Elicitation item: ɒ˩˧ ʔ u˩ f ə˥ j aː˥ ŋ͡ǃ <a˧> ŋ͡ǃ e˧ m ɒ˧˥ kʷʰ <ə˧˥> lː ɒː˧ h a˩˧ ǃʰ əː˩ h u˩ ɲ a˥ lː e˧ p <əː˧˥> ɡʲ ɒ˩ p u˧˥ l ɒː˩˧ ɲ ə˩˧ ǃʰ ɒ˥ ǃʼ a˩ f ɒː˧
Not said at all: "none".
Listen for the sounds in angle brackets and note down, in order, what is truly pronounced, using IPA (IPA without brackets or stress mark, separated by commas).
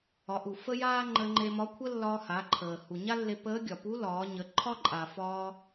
ə˧, ə˥, əː˧˥